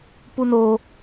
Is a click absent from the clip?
yes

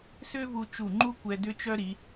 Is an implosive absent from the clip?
yes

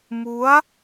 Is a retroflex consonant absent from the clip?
yes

